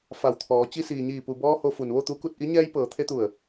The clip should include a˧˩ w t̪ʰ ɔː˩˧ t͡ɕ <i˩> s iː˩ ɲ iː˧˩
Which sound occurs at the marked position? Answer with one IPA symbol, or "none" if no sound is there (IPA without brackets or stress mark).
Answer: i˧